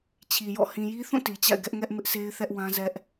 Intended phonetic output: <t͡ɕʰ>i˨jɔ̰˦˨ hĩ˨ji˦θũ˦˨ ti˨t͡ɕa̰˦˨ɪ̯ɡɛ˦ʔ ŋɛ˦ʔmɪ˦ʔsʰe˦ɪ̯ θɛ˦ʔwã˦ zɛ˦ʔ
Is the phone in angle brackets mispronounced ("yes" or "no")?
no